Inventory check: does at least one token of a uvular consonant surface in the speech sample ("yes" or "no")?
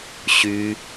no